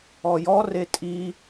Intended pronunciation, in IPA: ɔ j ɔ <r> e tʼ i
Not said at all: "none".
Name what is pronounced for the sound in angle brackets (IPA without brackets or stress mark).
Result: r